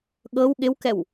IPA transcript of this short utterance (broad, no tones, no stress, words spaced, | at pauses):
ɠɤw ɠɪwkɛw